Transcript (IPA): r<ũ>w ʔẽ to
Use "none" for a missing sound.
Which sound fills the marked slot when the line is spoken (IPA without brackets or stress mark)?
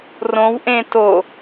õ